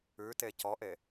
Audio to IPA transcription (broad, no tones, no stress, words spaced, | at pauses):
ʉte cɔʔe